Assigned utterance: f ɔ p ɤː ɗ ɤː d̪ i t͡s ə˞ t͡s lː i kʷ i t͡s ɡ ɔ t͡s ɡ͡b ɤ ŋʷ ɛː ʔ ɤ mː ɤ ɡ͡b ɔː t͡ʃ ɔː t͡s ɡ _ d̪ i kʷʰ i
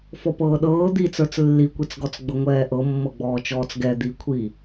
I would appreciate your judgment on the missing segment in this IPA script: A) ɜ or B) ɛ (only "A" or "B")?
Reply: B